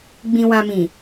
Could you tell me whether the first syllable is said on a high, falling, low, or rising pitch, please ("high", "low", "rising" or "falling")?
low